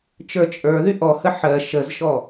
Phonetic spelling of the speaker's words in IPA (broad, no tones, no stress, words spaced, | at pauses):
t͡ʃə˞t͡ʃʼə˞ðy ʔɔhə ħɜ ʃəzʃɔ